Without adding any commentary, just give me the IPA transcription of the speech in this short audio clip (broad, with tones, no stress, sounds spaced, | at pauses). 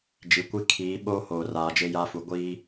d͡ʒ i˨ kʷ i˦ kʰ iː˨˦ ɓ oː˦ h oː˨ r aː˨ d͡ʒ e˦ j a˦ f u˨ ɡʷ i˦